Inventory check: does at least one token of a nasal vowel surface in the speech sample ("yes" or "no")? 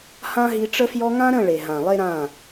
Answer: yes